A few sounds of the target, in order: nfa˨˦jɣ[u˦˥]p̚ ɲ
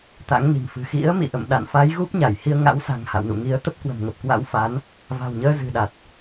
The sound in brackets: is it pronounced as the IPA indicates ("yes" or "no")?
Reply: yes